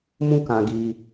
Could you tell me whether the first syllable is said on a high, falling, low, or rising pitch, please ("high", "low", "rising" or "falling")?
falling